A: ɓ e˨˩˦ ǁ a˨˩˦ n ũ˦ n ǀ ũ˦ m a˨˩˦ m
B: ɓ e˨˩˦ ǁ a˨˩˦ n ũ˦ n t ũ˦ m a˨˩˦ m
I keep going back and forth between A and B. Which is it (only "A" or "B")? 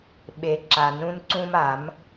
A